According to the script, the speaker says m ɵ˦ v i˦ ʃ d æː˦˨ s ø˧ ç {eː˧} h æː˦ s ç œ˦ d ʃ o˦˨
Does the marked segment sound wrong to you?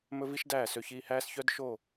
yes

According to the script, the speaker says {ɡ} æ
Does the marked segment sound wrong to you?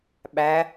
yes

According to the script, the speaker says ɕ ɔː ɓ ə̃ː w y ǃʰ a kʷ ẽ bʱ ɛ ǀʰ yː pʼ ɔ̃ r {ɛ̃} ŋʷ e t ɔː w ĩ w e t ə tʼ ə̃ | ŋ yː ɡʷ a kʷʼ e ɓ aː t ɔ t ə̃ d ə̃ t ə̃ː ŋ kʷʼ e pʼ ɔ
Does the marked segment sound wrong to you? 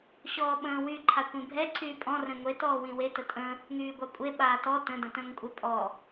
no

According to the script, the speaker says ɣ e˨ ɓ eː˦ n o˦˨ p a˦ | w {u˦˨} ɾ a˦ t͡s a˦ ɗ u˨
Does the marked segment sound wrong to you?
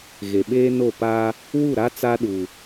no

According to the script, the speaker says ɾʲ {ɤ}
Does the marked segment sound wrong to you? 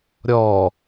yes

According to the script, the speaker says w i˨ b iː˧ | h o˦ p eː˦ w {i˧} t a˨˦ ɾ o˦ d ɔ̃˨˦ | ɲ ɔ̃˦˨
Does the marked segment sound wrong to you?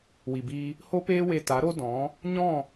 yes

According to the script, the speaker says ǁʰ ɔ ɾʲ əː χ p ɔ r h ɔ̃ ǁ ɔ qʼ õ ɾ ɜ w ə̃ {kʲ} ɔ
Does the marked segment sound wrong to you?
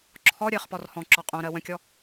no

